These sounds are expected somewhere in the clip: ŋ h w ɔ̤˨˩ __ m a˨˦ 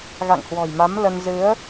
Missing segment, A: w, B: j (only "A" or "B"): B